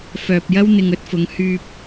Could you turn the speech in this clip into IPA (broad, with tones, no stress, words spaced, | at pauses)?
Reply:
fœː˨p̚jɐ˥wn̪ɪ˨ŋ ɵ˨˥t̚fʊ˨˥ŋhyː˧p̚